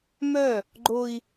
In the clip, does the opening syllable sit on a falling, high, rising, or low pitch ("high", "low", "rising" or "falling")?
falling